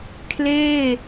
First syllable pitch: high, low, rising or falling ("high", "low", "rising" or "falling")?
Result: falling